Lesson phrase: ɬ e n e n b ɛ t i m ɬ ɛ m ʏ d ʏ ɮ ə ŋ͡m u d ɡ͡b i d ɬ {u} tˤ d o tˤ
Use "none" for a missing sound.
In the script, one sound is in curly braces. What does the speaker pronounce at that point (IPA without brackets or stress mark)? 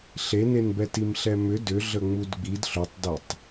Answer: ʏ